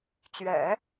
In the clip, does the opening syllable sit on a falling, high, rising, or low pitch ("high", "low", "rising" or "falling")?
low